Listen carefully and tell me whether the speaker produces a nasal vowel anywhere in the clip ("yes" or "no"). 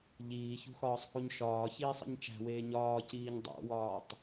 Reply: no